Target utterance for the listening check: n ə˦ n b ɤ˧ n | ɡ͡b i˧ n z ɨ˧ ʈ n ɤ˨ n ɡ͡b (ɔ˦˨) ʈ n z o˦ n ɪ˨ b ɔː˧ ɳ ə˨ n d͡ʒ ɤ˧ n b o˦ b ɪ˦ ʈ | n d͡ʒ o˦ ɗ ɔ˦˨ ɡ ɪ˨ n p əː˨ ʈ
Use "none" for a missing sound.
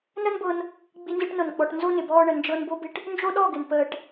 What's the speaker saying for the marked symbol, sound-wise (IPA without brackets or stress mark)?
ɔ˨